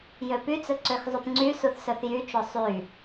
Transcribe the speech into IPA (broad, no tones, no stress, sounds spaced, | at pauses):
j ø p y t͡s ɵ ǀ ø x zˤ y p ŋ͡ǀ y s u θ s œ θ j y t͡ʃ o sˤ y